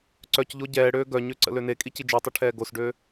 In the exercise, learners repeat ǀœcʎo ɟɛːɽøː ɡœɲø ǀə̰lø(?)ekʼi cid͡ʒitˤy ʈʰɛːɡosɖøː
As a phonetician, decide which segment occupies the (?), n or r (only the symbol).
n